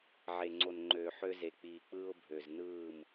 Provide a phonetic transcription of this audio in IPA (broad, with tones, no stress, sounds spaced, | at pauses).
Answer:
ʕ e˨ ŋ͡ǀ o˨ n ŋ͡ǃ øː˨ ħ ø˦ z e˨ k͡p iː˨ k͡p ɯː˦ ʊ̯ bʱ ø˨ z n ɯː˦˨ m